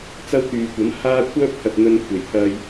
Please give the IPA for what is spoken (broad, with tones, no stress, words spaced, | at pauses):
t͡sɐ˥wt̪yː˨kʷɐ˨˥m haː˥ kʷʰœː˥p̚t̪ʰɐ˨t̚ n̪ɵ˧nkʷʰe˨˩jt̪ʰɐ˧j